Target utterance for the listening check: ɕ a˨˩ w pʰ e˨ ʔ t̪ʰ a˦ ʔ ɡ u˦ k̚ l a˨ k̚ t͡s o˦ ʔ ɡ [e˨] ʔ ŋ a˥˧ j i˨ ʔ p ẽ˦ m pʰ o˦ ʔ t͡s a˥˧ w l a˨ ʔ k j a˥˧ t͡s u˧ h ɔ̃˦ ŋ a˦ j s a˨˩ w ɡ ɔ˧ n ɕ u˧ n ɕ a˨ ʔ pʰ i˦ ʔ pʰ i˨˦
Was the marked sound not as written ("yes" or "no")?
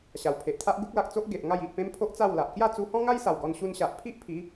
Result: no